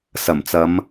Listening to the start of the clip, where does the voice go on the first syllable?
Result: low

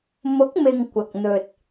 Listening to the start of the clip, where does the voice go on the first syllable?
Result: rising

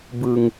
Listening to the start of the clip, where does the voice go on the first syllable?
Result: low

